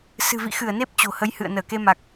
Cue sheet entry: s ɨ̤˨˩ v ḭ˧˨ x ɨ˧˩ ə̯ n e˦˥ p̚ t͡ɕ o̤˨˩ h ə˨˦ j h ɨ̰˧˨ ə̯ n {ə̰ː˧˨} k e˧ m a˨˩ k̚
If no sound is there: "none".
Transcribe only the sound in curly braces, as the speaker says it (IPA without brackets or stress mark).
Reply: əː˧˩